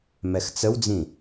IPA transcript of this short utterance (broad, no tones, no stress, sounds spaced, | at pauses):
m ɛ x t͡s ə w d͡z ĩ